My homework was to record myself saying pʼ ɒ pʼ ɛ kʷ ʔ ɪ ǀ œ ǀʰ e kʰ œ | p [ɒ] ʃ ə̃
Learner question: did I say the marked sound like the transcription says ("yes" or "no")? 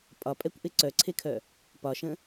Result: yes